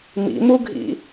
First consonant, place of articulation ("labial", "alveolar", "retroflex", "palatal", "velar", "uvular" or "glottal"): labial